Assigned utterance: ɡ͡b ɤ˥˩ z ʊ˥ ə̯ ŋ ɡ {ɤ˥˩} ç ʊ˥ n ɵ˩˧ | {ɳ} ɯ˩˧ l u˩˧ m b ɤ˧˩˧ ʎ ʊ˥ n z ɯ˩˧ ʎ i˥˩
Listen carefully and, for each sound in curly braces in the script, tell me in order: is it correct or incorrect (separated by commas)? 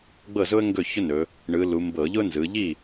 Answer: incorrect, correct